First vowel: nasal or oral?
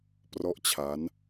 oral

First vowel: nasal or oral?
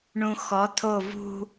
nasal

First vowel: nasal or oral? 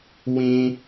nasal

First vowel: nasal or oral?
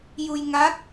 oral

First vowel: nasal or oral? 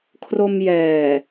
oral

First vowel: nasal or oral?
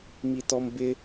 oral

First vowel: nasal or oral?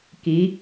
oral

